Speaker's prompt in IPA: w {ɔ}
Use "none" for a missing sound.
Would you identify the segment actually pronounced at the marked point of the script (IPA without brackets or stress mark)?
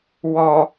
ɔ